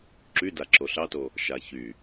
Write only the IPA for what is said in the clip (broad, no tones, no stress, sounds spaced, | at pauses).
ǁ y d a ǁ o ɬ ɑ t o | ʃ a ç y